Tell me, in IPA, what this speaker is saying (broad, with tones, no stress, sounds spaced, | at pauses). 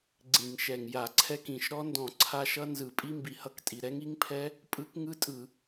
ɡ͡ǀ ĩ˧˩˧ ŋ ʃ ɛ˨˩ ŋ j a˧˩˧ ǀʰ ɛ˦˥ k ĩ˨˩ ʃ ɾ ɔ˦˥ n d ɔ̃˧˩˧ ǀʰ a˦˥ ʃ ʌ˦˥ n z ɯ˧˩˧ pʼ i˦˥ m b i˨˩ h ʌ˦˥ k tʼ i˨˩ ɾ ɛ˦˥ ŋ i˦˥ ŋ pʰ ɛ˦˥ | pʼ ɯ˦˥ k ŋ ɯ˦˥ tʼ ɯ˧˩˧